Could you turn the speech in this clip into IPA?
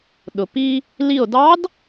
ɗ ʊ˩ p i˧ | l i˧˩ o̯ d ɑ˧˥ d

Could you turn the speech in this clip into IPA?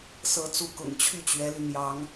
s ɤ˧˥ t͡s u˧˥ k ʊ̰˨˩ ŋ t͡ɕʰ y˥˩ t͡ɕ ɥ ɛ˧˥ l y˧ n̪ j ɑ˧˥ ŋ

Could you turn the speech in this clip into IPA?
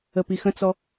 ə p i x ə̃ t͡s ɔ

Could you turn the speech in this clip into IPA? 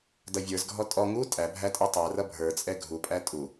d ʌ vʲ ə˞ z ɡʱ ɔ tʼ ɔ ŋ u tʼ æ bʱ æ tʼ ə˞ tˤ ə˞ r ʌ bʱ ə˞ t͡sʼ ɛ ɡʱ u pʼ æ tʼ u

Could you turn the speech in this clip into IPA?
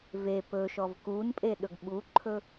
v e p ɵ ʃ ɔ v k u n pʼ e ɗ ɵ ɡ ɓ u ǃʰ ɵ

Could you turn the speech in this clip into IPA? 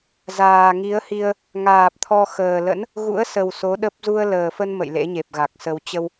z aː˨˩ ŋ i˨˦ ə̯ h i˧ ə̯ | ŋ aː˨˩ p̚ t̪ʰ ɔ˧ x əː˨˩ l ə̰˧˥ n | ɣ ṵ˧˥ ə̯ s ə˨˩ w s o˨˦ ɗ ə˦˥ p̚ z u˧ ə̯ l əː˨˩ f ə˧ n m ə̰˧˨ j l ḛ˧˥ ɲ e˨˩ p̚ ɣ a˨˩ k̚ s ə˧ w t͡ɕ ə˧ w

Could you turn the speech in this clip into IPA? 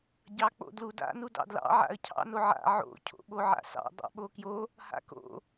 ɟ ɑ k͡p o̰ d l u d a̰ n u d ɑ̰ d l ɑ̰ ʕ a̰ ə̯ cʰ ɑ̰ n o ʕ a̰ ʕ o̰ cʰ o̰ ɓ o ʕ a̰ s ɑ̰ dˤ a̰ ɓ o k j o | h a̰ k o̰

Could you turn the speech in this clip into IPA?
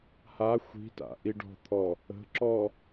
h a xʷ i̤ t a̰ ʔ i ɖ ɔ̤ t̪ʰ ɔ | ə̤ ǁ ɔ

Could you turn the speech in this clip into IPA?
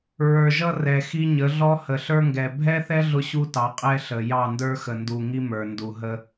ɹ ə˞˨ ʒ ʌ˦ r ɛ˨ x i˦ ɲ ə˨˦ ɮ ɔ˦ h ə˨ ɬ ə˞˦ ŋ ɡ ɛ˨ bʱ ɛ˦ θ ɛ˦ ɮ ʊ˦ ɕ u˦ t ɑ˨˦ qʼ ɛ˦ ɬ ə˨ j ɑ˦˨ n d ə˞˦ x ə˨ n d u˨ ŋ i˦ m ə˞˨ n d u˨ ɦ ə˦

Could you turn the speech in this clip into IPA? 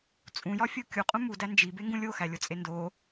t͡sʼ ũ j ɒ fʲ o kʲ u qʼ ũ m u d æ n d͡ʒ i b e ŋ ɡ ũ lʲ o x æ lʲ o t͡sʼ e n d o

